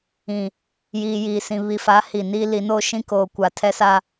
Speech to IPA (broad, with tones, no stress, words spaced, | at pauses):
ĩ˨ | jiː˨jiː˨sĩ˨ βi˨fa˨˦ hi˨niː˦li˨˦ noː˦ʃĩ˦koː˨ kʷa˨ tʰɛ˦sa˦